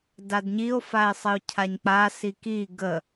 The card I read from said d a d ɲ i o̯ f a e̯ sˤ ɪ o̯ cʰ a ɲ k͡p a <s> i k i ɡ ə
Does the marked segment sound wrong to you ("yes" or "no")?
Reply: no